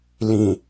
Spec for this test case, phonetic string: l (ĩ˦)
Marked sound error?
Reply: yes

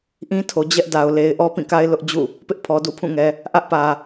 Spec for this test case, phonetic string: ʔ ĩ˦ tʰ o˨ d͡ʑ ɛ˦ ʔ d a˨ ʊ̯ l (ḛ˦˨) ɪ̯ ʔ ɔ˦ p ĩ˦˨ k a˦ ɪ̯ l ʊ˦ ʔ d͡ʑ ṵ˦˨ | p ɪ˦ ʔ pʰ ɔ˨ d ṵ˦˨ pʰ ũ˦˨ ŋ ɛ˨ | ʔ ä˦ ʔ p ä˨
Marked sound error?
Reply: yes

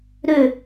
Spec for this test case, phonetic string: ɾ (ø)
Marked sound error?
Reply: no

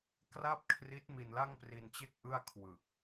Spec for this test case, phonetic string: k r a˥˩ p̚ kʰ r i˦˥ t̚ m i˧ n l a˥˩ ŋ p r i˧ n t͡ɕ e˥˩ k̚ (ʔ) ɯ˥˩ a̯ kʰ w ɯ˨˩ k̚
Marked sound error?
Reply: no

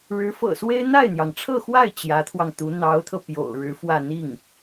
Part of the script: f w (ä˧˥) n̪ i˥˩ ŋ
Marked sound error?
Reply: yes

